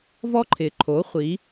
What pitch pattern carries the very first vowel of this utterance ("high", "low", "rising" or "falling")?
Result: high